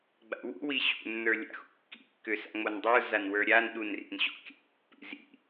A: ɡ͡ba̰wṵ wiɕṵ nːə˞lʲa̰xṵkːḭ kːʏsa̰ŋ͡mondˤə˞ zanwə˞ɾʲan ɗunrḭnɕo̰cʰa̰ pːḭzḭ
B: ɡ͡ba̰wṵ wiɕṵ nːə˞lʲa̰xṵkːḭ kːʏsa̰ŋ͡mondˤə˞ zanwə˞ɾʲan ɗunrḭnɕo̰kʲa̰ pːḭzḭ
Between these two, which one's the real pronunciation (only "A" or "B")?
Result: B